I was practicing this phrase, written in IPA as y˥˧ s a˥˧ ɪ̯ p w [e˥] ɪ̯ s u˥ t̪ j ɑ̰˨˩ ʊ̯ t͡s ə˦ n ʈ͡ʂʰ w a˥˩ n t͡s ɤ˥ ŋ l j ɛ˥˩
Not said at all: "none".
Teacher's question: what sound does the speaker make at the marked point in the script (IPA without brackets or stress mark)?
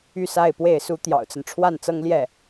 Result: e˥˩